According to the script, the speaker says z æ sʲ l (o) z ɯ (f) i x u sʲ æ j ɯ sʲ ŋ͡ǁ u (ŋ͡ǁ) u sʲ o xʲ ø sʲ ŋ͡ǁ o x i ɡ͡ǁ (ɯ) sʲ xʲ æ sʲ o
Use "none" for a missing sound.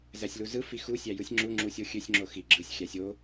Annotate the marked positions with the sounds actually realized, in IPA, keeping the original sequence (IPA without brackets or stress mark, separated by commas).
u, f, ŋ͡ǁ, ɯ